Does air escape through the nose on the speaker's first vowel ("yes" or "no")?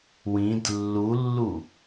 yes